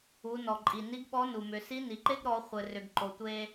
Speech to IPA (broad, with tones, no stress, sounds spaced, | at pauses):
u˩˧ n ɔ˩ ǃʼ i˩ n i˧˥ ɡ ɓ ɔ˧˥ n u˩ m ʏ˩˧ s i˧˥ n i˩ ǃ e˥ ɡ ɾ ɔ˩˧ χʷ ɘ˩ r ʏ˩ ɡ ǃ o˩ tʷ e˧